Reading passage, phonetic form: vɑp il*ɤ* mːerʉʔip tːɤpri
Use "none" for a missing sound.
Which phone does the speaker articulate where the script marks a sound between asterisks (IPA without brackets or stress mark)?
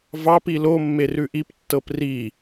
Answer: o